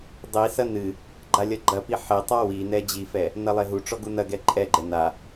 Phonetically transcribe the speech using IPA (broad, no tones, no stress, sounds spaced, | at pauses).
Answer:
dˤ i s ɐ n ɨ | ɡ͡ǃ a lʲ ɐ ɡ͡ǃ ɐ p i ħ e tˤ a w i n ɛ d͡ʑ i f ɛ | n ɐ lˠ e ɦ u ʈ͡ʂ ɔ ɡ u n ɐ ɡ ɛ ǃʼ ɛ ɡ͡ǃ ɛ n a